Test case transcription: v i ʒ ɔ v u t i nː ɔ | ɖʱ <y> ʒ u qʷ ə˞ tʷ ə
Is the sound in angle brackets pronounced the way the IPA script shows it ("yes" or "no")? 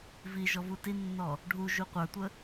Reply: no